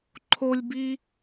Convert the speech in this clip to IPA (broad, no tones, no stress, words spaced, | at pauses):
ǃʰolʲbi